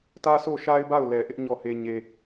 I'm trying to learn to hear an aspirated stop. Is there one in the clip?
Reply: no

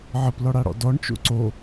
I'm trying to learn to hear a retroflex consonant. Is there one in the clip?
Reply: yes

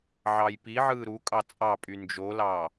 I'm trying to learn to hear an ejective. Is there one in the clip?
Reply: yes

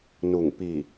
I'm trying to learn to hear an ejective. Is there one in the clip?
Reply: no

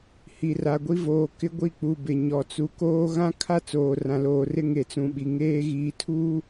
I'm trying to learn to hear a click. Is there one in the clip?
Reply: no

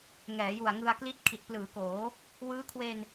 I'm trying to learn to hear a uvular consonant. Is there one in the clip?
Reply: no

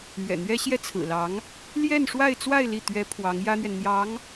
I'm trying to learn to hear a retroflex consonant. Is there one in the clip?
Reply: yes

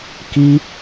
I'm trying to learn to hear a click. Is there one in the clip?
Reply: no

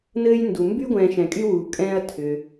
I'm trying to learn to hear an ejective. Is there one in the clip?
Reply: yes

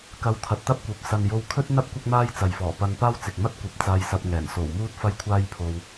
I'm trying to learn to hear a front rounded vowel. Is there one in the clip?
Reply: no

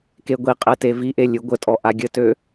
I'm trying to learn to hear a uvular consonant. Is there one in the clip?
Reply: yes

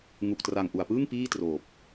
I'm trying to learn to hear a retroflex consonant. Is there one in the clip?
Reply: no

